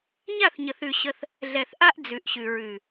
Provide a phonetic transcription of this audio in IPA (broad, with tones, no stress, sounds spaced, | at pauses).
ɲ a˦˨ θ ɲ ə˨ θ ʉ˨ ɕ ə˦ θ | ɮ ɛ˨ θ ʔ a˦ ʔ d͡z ʉ˨ ʔ ɕ ʉ˨ ɹ ʉ˨